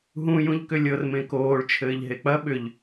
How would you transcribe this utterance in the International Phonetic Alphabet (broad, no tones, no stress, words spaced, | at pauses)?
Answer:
ɦũ jũʎkʏlʲɤr mẽkoːɭ t͡ʃʰɘːʎɦek͡pɐ ɓʏʎ